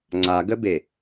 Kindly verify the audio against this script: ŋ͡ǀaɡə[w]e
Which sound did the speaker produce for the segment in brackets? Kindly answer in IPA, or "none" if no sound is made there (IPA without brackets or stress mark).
b